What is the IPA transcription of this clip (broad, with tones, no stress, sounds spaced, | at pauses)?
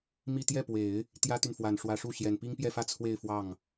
m i˥˧ t̪ j ɛ˥˩ p w e˨˩˦ ɪ̯ | t̪ j ä˥ t̪ y˨ n f w a˨˩ n ʂ w ä˧˥ ʂ u˥˩ ɕ j ɛ˨˩ n p i˥ ŋ p j ɛ˥˧ f ä˥˧ t͡sʰ w e˥˧ ɪ̯ f w ɑ˥˩ ŋ